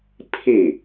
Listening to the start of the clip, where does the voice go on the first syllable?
falling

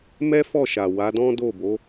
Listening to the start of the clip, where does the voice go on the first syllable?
high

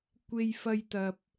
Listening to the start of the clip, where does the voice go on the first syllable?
high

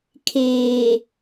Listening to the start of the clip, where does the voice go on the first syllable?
low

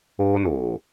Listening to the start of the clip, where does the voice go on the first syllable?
high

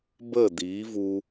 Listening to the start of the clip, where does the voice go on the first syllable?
falling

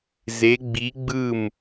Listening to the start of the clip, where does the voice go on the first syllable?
rising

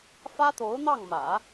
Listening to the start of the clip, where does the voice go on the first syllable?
high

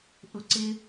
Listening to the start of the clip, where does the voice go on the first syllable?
rising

